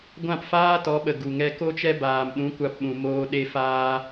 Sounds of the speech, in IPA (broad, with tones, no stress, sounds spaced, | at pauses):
ɡʷ ã˦˨ p f aː˦ t ɔ˨˦ ɓ ə˨ ɡ u˨ ŋ ɛ˧ k o˦ t͡ʃ ɛ˦ b aː˨ m ɗ ũ˨˦ kʷ a˧ p ɓ ũ˨ m oː˧ ɗ e˧ f aː˧